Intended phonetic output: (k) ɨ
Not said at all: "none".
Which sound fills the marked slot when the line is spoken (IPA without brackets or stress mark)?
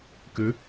k